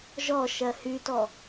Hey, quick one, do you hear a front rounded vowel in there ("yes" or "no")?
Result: yes